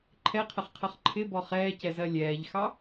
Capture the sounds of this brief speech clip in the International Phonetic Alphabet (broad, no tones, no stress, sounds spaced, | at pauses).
ǃʰ ɛ qʰ ə χ qʰ ʌ χ ǃʰ ɪ b ɔ χ ɛː c ɛ z ɜ lʲ ɛː ʎ x ɑ